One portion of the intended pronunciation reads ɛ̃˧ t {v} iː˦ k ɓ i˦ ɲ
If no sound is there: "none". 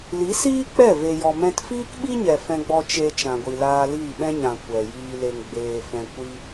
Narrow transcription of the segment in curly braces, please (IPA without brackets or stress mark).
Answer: f